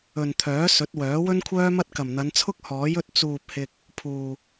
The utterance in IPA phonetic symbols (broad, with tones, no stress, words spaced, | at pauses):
ɵ˨nt̪ʰœː˨˥ sɵ˨˥t̚wœː˨˥ wɵ˥nkʷʰœː˥mɐ˥t̚ kɐ˨˩mn̪ɐ˨˧nt͡sʰʊ˥k̚ hɔː˨˥j ɵ˧t̚t͡suː˨p̚hɪ˨k̚ | pʰuː˨